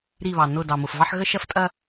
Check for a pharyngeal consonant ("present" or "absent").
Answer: present